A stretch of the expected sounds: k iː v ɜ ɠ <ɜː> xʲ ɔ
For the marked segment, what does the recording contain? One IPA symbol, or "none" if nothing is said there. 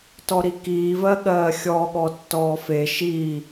ɜː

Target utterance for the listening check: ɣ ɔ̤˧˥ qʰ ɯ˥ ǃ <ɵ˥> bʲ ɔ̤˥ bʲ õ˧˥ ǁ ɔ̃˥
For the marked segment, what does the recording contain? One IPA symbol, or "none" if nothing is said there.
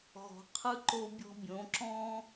o˥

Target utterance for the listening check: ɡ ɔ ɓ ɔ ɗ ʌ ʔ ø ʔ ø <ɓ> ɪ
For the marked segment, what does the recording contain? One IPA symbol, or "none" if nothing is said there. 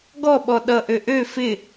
f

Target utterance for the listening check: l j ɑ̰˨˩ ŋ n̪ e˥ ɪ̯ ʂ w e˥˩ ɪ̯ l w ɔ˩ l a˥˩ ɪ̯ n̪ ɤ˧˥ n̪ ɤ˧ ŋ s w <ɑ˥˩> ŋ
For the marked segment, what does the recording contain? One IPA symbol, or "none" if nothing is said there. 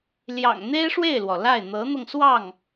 ɑ˥˩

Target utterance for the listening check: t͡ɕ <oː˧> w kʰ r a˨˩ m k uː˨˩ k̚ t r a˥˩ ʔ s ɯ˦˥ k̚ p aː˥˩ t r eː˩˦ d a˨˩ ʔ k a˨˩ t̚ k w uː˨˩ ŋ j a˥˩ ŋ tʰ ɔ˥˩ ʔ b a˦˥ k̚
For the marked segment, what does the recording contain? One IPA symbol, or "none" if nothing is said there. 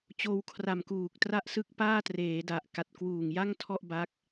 oː˧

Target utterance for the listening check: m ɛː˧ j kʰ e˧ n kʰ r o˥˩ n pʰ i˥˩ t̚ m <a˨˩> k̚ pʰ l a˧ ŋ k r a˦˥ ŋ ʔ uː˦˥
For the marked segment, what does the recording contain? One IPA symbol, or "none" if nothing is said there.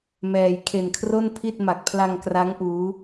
a˨˩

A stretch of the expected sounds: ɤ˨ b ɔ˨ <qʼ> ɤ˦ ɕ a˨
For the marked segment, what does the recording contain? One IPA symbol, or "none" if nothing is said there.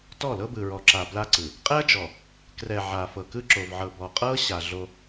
qʼ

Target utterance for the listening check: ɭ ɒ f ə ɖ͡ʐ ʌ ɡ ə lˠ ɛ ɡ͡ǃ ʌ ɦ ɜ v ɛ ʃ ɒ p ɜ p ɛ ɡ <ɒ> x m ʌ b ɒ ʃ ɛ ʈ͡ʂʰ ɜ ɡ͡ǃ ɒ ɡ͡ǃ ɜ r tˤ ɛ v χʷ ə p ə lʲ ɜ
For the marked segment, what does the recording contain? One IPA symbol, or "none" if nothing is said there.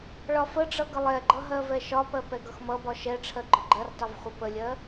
ʌ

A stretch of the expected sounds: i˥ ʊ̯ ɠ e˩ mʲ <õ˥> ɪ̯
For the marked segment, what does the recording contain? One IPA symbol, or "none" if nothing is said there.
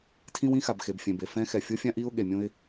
õ˥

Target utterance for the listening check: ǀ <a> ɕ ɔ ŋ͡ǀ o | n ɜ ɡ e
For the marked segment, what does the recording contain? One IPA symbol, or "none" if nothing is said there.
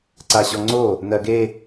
a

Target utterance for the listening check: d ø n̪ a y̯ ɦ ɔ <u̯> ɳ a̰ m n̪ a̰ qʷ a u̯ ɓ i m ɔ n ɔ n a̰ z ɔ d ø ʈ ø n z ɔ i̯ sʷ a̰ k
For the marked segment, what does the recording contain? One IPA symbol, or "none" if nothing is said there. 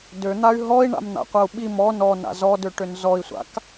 i̯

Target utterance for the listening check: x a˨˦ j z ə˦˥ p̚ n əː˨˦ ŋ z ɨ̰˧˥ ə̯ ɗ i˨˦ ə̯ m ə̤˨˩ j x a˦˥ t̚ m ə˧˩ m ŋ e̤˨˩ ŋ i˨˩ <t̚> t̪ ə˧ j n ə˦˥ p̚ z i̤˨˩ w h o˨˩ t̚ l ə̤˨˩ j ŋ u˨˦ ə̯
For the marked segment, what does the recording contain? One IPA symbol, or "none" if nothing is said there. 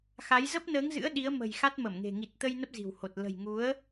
t̚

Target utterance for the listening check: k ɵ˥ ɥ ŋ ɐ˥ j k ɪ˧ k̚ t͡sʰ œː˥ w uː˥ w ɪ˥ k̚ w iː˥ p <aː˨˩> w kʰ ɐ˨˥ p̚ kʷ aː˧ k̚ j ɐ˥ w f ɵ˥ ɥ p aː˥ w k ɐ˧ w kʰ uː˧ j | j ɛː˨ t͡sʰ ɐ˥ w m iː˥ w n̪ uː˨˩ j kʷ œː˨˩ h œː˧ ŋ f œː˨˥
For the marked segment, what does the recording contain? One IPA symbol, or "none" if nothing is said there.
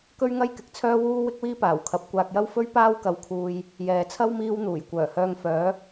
aː˨˩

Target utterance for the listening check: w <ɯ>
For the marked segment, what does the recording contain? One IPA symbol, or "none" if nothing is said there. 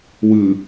ɯ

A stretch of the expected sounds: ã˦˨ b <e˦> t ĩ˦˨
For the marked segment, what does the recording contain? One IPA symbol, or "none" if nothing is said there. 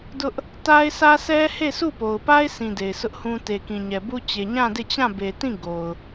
e˨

